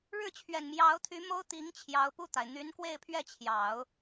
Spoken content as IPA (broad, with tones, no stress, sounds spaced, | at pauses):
ɻ ɻ̩˥˩ t͡ɕʰ ɥ ɛ˨˩ n m j ɑ˧˥ ʊ̯ t̪ʰ y˧˥ m o˥ ʊ̯ t̪ i˧˥ ŋ t͡ɕʰ j ɑ˧˥ ʊ̯ p u˥˩ t̪ a˩ ɪ̯ n̪ y˧˥ n k w e˥˧ ɪ̯ pʰ ɥ ɛ˥˩ t͡ɕʰ j ɑ˨˩˦ ʊ̯